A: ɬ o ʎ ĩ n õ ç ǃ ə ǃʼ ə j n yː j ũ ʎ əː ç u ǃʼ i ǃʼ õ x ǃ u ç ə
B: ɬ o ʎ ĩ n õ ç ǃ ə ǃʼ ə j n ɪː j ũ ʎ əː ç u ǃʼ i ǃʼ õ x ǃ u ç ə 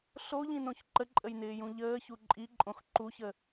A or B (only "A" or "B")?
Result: B